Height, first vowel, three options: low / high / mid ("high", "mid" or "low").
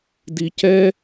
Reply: high